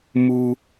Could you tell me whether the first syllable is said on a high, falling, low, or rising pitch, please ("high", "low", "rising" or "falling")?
low